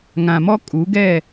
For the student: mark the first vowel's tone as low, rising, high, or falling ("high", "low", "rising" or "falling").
low